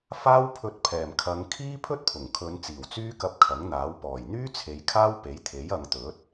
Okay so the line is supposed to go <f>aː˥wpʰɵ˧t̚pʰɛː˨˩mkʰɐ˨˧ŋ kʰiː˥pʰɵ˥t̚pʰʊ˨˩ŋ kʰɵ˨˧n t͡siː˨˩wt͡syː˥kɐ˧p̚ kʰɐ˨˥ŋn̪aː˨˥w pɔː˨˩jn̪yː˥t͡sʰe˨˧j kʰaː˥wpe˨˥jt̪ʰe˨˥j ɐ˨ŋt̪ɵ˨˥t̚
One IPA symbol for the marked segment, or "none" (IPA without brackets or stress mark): f